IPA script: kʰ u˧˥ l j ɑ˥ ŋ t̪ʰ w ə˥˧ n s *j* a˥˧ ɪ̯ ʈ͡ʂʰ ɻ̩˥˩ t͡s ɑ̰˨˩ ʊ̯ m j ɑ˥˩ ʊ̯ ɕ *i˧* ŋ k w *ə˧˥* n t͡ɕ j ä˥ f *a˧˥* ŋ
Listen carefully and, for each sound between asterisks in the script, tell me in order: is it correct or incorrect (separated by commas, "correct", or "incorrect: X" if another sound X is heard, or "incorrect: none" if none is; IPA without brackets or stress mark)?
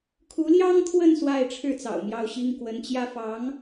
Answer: incorrect: w, incorrect: i˥, correct, incorrect: ɑ˧˥